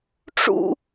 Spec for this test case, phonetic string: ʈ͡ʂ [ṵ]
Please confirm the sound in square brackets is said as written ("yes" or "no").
yes